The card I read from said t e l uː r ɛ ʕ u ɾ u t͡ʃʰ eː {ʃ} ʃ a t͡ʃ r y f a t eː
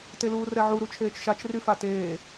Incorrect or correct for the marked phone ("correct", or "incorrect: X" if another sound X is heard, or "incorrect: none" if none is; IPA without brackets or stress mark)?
incorrect: t͡ʃ